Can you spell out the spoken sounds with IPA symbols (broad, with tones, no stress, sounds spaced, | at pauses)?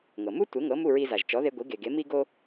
ŋ ɤ˩ m u˥ tʷ e˩˥ ŋ ɤ˩˥ m u˥˩ ɹ i˧ z a˩ ʒ t͡ʃ ɔ˩˥ ð e˧ ɡʷ i˩˥ ɡ e˩ ɡ e˩˥ m i˥ ɡ o˥